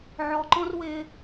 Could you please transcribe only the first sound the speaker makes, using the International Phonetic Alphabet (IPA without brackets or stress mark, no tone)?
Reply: ʕ